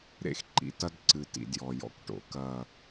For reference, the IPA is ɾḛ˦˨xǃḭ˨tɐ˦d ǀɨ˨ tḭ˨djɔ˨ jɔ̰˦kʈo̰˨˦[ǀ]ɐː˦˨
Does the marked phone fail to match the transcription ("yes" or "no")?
yes